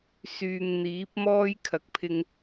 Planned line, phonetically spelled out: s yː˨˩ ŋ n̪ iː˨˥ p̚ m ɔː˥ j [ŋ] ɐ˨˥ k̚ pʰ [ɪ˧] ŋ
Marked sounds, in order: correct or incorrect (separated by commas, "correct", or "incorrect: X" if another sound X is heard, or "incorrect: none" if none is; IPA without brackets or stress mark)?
incorrect: kʰ, correct